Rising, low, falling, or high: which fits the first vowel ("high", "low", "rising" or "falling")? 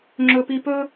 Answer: high